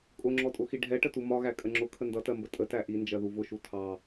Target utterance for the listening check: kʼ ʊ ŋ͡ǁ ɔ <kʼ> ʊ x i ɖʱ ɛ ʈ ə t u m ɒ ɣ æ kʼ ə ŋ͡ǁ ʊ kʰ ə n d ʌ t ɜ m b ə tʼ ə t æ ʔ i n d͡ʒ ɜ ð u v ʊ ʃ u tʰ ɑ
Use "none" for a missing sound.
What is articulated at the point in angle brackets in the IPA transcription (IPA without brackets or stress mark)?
tʼ